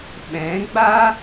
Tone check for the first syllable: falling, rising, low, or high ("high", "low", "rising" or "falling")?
rising